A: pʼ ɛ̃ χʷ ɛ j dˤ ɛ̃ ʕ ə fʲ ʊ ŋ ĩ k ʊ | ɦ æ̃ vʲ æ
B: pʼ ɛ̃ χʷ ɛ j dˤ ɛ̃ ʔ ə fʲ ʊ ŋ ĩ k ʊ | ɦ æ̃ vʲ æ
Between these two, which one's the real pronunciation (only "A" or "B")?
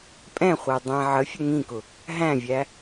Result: A